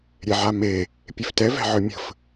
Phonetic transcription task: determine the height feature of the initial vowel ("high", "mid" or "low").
mid